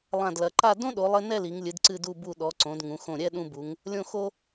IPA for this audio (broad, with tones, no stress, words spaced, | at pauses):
lˠã˧˩dlɐ˩˧ǃa˥˧ dõ˥ɗo˩˧lˠɘ˧ nɛ˥˧li˩˧ŋlʲɨ˩˧d ǀɨ˧˩du˧˩bu˧˩ɗɔ˩˧ ǀõ˩˧dŋũ˩˧xõ˧˩ɾʲɛ˥˧ ɗũ˧bu˩˧ŋ | lʲõ˧˩xo˧